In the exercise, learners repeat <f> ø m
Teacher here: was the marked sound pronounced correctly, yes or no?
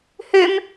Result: no